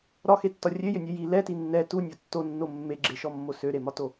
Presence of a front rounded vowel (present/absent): present